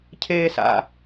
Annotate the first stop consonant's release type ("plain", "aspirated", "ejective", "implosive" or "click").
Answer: aspirated